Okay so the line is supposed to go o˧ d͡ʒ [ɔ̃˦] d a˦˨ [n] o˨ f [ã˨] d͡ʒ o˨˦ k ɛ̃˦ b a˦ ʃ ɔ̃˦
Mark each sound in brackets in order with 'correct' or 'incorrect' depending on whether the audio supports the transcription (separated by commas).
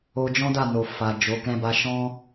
correct, correct, incorrect